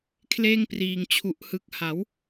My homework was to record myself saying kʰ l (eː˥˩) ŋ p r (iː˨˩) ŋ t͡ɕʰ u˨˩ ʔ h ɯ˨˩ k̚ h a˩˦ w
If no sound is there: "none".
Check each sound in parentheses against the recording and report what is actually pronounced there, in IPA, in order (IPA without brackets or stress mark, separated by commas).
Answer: eː˥˩, iː˨˩